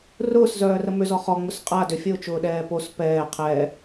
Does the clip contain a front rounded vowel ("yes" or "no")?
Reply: yes